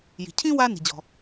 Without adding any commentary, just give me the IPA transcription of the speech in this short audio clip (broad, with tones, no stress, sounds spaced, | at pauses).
j i̤˩ cʰ ĩ˥ w a˥ n i̤˩ d͡ʑ ɔ̤˩